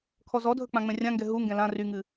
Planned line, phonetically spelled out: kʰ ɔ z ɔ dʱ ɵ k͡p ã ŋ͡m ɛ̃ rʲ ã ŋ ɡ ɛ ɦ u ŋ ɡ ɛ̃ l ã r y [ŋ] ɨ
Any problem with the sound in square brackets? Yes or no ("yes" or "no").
no